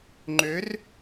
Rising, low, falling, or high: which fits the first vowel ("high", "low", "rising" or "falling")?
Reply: rising